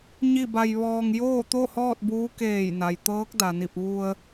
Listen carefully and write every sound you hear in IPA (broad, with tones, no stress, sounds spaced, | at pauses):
ɲ i˥˨ b a˧ j ʋ ɔː˧ ŋ j oː˥˨ t̪ o˥˨ h ɔː˥˨ t̚ b uː˧˥ k eː˧˩ j n a˩ j t̪ ɤː˧˥ k̚ d a˩ n i˧˩ p̚ ʋ u˧ ə̯